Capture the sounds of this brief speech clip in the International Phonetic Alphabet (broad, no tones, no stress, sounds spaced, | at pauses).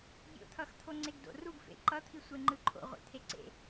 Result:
bʲ o̰ t̪ʰ ʌ x t̪ʰ o ŋ͡ǀ e ɡ d o̰ r u ɡ f ḛ ǃ ʌ t̪ʰ i sʷ e ŋ͡ǃ ɯ ǃʰ o̰ ʁʷ ḛ t̪ʰ e ǀ ḛ